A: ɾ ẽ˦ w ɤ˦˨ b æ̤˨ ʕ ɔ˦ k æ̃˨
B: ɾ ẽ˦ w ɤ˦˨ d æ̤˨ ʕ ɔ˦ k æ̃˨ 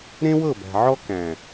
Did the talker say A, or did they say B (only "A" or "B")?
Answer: A